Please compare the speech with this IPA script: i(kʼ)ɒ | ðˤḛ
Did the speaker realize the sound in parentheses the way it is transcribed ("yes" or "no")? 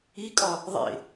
yes